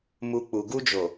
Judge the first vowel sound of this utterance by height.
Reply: high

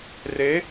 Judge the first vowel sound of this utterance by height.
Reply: mid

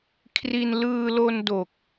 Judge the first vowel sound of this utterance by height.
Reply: high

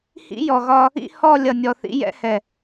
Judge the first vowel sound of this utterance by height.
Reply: high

